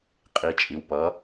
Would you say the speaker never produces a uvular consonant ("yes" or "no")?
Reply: no